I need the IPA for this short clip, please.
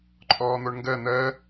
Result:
ǃʼ ɔː n̪ o ɳ ŋ ɡ ɜ n̪ ɜ

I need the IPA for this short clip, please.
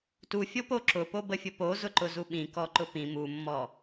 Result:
t u fʲ o p o ǁ ʊ p o b ə fʲ ʊ p o z ʊ ǃ ʊ z u ɓ ĩ k ɔ ǃ ʊ p ĩ m u mː ɔ

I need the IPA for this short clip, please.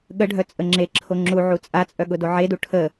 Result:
ɠ ə ɖʱ œ t͡sʼ ə ŋ͡ǁ e ǁʰ o ŋ͡ǁ u ʕ u t͡sʼ a t͡sʼ œ ɠ ʊ d o ʕ e d u ʈʰ ə

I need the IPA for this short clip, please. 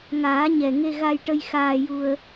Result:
ŋ aː˨˩˦ ɲ ɛ˨˩ ŋ e˧ ɣ a˧ j ʈ ə˧ j x aː˧ j u˧ ə̯

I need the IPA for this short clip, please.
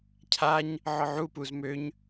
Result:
cʰ a ɲ | ʕ ɔ ʕ u p u z m ø ɲ

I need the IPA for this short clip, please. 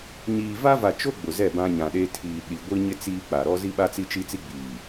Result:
ɲ iː˨ v a˦ v a˨ t͡ʃ o˦ ɡ͡b ʊ˨ z ɛ˦˨ b ã˦ ɲ ã˨ ɗ e˦ tʰ iː˨ ɗ i˨ ɡʷ i˦ ɲ ɪ˦ t͡s iː˦ k͡p a˨ ɾ ɔ˦ z i˦ ɓ a˦ t͡s i˦ t͡ʃ i˦ t͡s i˦ ɡ͡b iː˨

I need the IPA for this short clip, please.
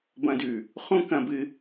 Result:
b ɐ̃˧ d ʉ˨ | χ ũ˦ k ɐ̃˧ b ɨ˧

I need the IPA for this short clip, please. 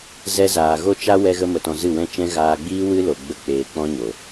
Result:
z ɛ˧ z aː˨ ɣ o˦ t͡ʃ a˦ w ɛ˧ ɣ ə˧ m ə˨ t ɔ̃˧ z ɨ˦˨ w ɛ̃˦ t͡ʃ ɛ̃˦ ɣ aː˧ ɡ͡b iː˦ w ɨ˦ l o˨ ɡ͡b ə˧ k͡p eː˧ k͡p ɔ̃˦ ɲ o˨

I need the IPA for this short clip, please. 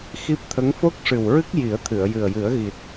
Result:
x i˦˥ p̚ t̪ʰ ə˧˥ ŋ f o˦˥ k̚ ʂ ɨ˨˩ w ɹ ɨ˦˥ k̚ j i˨˩˦ ə̯ t̪ʰ ɨ˨˩˨ ə̯ j ɨ˨˩ ə̯ j ɨ˨˩˦ ə̯ ɣ i˨˩ t̚

